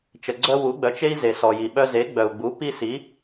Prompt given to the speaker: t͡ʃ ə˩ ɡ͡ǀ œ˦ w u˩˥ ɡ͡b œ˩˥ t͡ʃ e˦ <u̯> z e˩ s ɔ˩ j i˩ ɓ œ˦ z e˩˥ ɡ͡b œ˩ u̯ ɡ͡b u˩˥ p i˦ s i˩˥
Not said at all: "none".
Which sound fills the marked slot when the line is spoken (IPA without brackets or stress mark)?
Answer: i̯